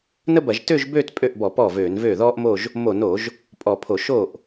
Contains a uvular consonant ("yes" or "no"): no